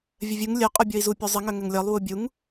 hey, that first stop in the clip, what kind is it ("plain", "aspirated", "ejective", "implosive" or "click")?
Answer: ejective